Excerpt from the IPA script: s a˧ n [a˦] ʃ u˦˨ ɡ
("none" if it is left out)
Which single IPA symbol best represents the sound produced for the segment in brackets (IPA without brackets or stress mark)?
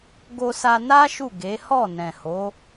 a˦